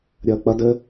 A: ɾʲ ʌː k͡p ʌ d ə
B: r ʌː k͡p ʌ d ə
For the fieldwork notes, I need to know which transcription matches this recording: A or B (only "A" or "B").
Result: A